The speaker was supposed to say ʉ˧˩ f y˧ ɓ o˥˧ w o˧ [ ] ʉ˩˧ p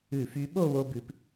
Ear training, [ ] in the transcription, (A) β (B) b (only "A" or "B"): B